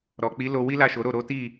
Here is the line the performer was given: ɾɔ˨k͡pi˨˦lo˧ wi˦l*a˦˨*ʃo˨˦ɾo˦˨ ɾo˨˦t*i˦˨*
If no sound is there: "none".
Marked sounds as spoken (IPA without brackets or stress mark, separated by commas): a˦˨, i˦˨